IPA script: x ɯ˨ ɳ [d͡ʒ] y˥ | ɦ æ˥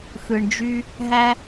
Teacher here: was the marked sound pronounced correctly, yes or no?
yes